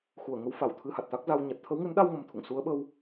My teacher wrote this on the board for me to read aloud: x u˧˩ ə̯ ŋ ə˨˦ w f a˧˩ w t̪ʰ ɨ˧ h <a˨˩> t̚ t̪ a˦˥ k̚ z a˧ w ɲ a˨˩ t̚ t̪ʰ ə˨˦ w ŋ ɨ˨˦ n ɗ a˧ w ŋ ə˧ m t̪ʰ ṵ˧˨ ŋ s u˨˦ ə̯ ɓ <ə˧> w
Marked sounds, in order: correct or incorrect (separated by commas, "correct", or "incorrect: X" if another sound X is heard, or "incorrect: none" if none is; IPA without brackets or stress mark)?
correct, correct